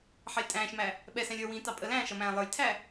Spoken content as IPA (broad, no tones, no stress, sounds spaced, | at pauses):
ħ ɑ lʲ tʼ æ̃ː ʃ m æ | ɓ ɛ s æ̃ lʲ ə˞ w ĩː t ɑ pʼ ə l æ̃ː ʃ ʌ m æ̃ː lˠ ə˞ lʲ tʰ æ